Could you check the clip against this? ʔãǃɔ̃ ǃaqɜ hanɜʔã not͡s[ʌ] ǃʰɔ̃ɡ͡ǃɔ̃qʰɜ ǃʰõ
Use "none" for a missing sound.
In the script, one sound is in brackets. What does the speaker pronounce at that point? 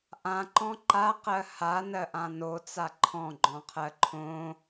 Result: a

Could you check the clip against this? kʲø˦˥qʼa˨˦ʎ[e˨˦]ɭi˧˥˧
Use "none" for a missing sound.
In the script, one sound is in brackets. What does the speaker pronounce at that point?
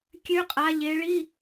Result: e˨˦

